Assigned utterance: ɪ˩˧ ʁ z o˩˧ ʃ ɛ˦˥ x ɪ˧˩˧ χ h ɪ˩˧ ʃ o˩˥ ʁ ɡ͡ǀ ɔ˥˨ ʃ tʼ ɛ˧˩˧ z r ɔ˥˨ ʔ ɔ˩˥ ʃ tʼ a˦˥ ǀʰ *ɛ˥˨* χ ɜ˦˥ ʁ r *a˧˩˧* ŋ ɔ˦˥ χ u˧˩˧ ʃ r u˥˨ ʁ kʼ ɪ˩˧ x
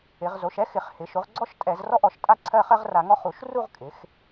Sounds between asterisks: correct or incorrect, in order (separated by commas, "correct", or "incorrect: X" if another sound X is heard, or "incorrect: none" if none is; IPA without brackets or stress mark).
incorrect: ɜ˥˨, correct